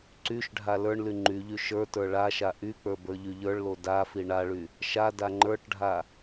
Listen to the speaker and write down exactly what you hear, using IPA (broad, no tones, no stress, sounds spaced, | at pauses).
ǀ y ʃ ɖʱ a l ə˞ ɳ l y ŋ͡ǃ y ʎ y ʃ ə˞ t ə˞ ɭ a ʃ a ʔ y k͡p ə˞ b ə˞ ʎ y ʎ ə˞ ɭ l o d a f i ɳ a ɭ y | ʃ a d a ŋ͡ǃ ə˞ ʈ ɖʱ a